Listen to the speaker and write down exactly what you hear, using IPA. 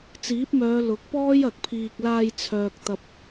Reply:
t͡siː˨˥p̚mœː˨˧ lʊ˨˥k̚pɔː˥j ɐ˨k̚pʰiː˧k̚ laː˧jt͡sʰœː˨k̚t̪ɐ˨p̚

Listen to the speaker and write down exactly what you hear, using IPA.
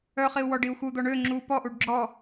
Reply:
œχiu̯ wɔɖiu̯xud̪ɔ ɳø ŋ͡ǁu pɔʔuɖ ɡ͡ǁɔ

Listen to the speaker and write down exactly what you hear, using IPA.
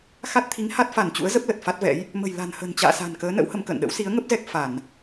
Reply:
xa˦˥t̚ t̪ʰi˨˦ŋha˦˥t̚fa˧˩n t͡ɕṵ˧˥ə̯zə˦˥p̚ lə˨˩t̚fa˦˥t̚vɛ̰˧˥j | mə̤˨˩jla̤˨˩nhə̤˨˩n t͡ɕa̰ː˧˨sa̤˨˩nkəː˨˦ nə̰˧˥whə˧mkə̰ː˧˨nɗə̰˧˥w si˨˦ə̯ŋə˦˥p̚zɛ˦˥k̚ fa˧˩˨n

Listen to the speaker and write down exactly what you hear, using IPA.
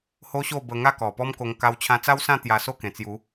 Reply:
ho˦ɕo˥˧bə˧ ŋa˥˧kɔ˨˩pɔ˦mko˧ŋ ka˧wt͡ɕʰã˧t͡sa˦wsã˥˧ t̪ja˧so˥˧kẽ˨˩t͡sju˨˦

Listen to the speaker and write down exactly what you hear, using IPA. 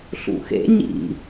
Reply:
ɬṵxḛ ɲḭ

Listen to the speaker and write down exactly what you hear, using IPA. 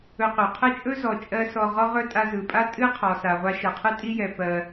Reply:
ɵ˧qɵ˩ qʰɛ˥t͡ʃʼɵ˥ zɔ˩t͡ʃʼɜ˧ sɔ˧ʁɔ˥ʁɵ˥ tʼa˧zɯ˩pʼa˥ tʼɨ˥qʰɔ˩ sa˩ʁʷa˧ ʃə˩qʰɨ˥tʼi˥jɛ˩ pɜ˩

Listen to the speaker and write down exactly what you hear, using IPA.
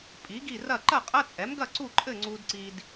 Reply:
pʼi˩˥ɡi˥˨rɐ˥˨ ǃɐ˥˨qʼɐ˧˥˧t͡sʼɛ˩˥mɡɐ˥˨ ǀu˥˨ǃʼɘ˥˨ ŋ͡ǀu˨dǀi˨d

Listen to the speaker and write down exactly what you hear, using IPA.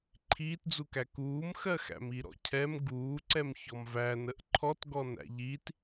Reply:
ǃʰiːtd͡zukæ kuːmxɜxæ̰m iɾɔ̰cʰɛm ɡuːǀɛm çɔmvæ nəʔǃʰɔt ɡɔnæ̰ʎit

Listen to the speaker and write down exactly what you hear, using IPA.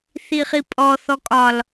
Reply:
θiχipʼɔ θɔkʼɒl

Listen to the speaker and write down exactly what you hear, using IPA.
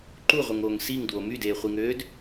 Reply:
ǃuʁʷɯŋoːŋ siŋdwo mydeːχʷiŋøːd

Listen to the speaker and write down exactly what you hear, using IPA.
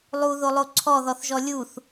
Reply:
lˠuðolˠo ǀʰɔðɔθʒɔ lʲuθ

